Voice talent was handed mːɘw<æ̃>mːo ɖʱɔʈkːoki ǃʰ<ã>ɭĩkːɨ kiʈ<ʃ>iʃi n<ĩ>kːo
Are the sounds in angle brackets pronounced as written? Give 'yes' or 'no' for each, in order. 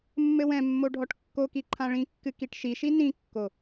no, yes, yes, yes

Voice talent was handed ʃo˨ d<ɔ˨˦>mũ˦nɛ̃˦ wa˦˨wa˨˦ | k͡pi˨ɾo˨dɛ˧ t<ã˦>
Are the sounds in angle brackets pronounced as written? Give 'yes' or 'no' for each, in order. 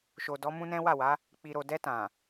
yes, no

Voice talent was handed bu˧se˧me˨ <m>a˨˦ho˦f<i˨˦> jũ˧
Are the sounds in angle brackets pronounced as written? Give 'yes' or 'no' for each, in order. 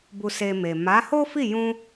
yes, no

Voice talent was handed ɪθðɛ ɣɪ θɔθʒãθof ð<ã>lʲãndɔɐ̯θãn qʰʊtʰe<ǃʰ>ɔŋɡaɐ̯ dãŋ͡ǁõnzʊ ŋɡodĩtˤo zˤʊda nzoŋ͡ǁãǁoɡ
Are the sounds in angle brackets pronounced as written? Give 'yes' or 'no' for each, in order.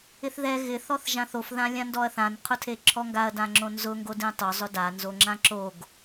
yes, no

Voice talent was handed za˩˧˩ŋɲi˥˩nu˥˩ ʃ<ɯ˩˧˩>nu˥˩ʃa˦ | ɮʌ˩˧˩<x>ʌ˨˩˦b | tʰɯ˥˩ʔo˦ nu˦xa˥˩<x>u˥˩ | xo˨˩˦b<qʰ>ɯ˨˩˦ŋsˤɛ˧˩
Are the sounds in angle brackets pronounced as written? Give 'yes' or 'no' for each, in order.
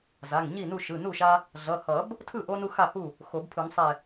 yes, no, no, no

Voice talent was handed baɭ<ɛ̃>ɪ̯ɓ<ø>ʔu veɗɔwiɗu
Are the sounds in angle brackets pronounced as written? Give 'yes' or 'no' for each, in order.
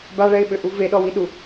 no, yes

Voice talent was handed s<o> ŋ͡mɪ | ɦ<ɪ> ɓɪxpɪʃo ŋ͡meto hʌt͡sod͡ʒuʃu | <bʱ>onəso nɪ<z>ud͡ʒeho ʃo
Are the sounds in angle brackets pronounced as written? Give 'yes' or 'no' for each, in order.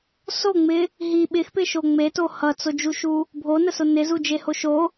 yes, no, yes, yes

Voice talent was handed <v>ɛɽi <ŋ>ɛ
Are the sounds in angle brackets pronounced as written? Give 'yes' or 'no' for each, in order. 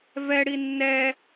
yes, no

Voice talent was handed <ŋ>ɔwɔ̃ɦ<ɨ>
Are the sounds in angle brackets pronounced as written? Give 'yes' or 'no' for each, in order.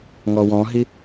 yes, no

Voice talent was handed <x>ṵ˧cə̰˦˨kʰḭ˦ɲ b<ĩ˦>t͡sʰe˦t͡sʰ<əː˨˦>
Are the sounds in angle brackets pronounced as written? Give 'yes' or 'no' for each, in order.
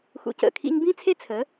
yes, yes, no

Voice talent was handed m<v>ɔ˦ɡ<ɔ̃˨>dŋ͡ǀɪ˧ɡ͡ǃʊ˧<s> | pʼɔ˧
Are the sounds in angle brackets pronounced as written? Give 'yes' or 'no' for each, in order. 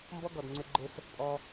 no, no, yes

